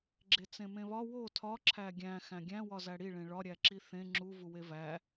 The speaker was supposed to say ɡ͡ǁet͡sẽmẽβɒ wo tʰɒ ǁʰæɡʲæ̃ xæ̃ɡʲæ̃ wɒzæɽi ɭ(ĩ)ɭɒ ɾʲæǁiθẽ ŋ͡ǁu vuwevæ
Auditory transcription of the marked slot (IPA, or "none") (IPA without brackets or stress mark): ẽ